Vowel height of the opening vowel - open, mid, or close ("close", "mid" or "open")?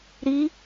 close